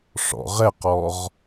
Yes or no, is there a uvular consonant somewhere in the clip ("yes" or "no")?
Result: yes